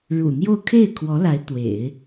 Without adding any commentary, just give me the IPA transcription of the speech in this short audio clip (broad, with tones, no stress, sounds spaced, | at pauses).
ɻ ṵ˨˩ n̪ j o˥˧ ʊ̯ kʰ e˥˩ ɪ̯ kʰ w ɔ˧˥ l a˧˥ ɪ̯ t̪ w ḛ˨˩˦ ɪ̯